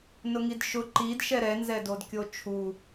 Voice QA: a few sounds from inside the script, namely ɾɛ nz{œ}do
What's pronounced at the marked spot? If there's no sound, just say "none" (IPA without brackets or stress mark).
ɛ